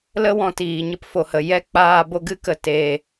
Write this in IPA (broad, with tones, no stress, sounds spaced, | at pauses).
l ə˦ w ɔ̃˧ t iː˨ ɲ ə˦ p f o˨ h ə˨ j ɛ˦ k͡p aː˧ b o˧ ɡ ɨ˦ k ə˨ t eː˨